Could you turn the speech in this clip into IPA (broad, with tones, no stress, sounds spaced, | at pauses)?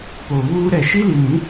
p o˨ β uː˦ ɾ ɛ˦˨ ʃ i˦ l i˨ n ĩ˨˦